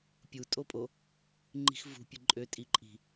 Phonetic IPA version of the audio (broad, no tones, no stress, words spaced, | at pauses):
pʲu tʼopʼo | ŋ͡ǃi̤xvṳ pʲɯǃʼø tʼiǃʼi̤